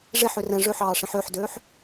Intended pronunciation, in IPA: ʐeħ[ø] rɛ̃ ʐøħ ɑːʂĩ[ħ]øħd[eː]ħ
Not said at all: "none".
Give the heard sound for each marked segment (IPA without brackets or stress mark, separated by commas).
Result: ø, ħ, øː